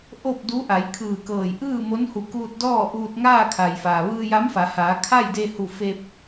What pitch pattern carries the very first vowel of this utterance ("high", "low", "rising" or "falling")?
falling